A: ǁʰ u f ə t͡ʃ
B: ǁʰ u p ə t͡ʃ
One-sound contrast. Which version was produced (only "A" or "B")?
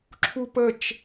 B